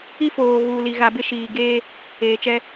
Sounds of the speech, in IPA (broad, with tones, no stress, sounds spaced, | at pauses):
i˦ f oː˨ ɣ uː˨ l i˨ ɣ a˨ b ɪ˦˨ ʃ iː˨ ɡ eː˦ | eː˨ t͡ʃ ɛ˦